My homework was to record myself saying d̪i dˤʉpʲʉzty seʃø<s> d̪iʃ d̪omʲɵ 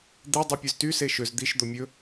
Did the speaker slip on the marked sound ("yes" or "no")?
yes